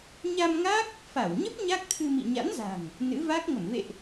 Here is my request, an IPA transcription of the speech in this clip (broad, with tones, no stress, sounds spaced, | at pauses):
ɲ a˧ m ŋ a˦˥ k̚ | f a˧˩ w ɲ ə˦˥ p̚ ɲ a˦˥ k̚ t̪ʰ ɨ˧ m ḭ˧˨ ɲ a̰˧˥ n z a̤˨˩ ŋ | n ɨ̰˧˥ v a˦˥ k̚ ŋ ə˧˩ m v ḛ˧˨ ʔ